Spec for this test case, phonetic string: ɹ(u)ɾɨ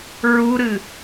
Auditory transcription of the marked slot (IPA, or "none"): u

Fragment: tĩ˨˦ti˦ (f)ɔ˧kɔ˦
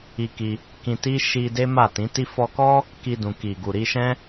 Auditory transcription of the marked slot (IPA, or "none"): f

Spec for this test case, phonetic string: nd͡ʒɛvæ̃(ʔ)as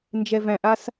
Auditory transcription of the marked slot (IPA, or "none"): ʔ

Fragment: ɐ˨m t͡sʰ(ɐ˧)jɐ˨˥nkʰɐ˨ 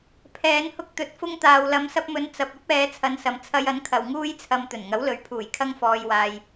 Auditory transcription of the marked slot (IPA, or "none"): ɐ˧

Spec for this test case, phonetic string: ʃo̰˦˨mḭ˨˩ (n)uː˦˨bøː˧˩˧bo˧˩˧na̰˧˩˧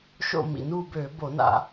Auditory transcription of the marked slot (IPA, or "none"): n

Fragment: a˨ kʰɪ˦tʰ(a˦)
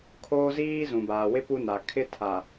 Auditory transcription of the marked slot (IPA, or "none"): a˨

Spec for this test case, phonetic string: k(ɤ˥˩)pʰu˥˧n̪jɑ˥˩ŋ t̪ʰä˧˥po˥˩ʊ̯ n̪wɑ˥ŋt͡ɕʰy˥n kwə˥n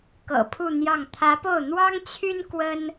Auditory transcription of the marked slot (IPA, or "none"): ɤ̰˨˩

